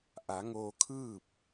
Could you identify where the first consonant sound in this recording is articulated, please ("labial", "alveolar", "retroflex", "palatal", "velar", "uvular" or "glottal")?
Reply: glottal